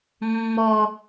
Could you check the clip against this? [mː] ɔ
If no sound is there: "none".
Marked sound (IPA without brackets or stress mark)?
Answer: mː